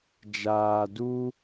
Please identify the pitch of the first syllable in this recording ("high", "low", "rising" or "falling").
low